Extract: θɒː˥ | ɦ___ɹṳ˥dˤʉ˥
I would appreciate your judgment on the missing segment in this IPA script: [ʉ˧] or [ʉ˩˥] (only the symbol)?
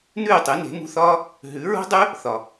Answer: ʉ˩˥